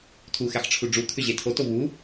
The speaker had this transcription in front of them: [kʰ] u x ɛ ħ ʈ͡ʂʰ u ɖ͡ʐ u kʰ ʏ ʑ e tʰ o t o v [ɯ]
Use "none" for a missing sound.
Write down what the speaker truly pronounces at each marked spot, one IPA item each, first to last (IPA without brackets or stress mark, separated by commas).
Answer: tʰ, u